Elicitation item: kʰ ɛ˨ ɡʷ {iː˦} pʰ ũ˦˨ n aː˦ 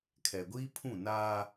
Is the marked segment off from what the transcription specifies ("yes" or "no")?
no